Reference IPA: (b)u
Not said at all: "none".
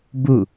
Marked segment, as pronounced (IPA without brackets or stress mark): b